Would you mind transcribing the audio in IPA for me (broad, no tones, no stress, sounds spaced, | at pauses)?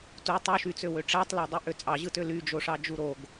t u tˤ u ʃ y t͡s ø w ø ʈ͡ʂ æ tˤ l æ dˤ ɯ ʔ ø t͡sʼ ɑ ʑ ɯ t ø l y d͡ʒ o ʂ ɑ d͡ʒ u ɾ o ɡ